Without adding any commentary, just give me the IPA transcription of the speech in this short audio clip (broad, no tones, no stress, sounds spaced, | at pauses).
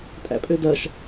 tʼ æ̰ pʼ ø d ɐ ʃ